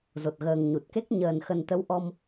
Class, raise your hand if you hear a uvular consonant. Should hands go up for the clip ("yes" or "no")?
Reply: no